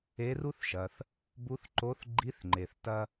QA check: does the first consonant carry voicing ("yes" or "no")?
yes